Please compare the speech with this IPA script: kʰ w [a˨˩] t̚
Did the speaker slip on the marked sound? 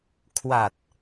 no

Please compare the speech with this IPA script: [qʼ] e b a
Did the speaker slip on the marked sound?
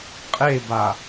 no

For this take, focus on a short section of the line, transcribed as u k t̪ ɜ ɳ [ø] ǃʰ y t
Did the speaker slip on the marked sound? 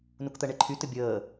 yes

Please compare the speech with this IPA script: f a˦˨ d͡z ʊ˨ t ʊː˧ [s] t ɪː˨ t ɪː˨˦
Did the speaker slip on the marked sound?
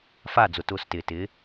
no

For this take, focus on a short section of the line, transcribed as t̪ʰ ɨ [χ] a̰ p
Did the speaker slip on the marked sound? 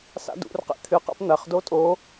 yes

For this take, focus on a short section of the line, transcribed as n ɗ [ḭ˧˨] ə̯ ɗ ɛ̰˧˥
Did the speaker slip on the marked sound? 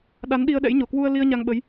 yes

